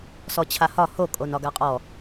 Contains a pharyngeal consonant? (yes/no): no